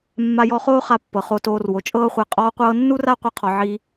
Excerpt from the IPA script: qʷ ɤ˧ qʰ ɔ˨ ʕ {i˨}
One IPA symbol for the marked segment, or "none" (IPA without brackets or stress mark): i˧